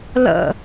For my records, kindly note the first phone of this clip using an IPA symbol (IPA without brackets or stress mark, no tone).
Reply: l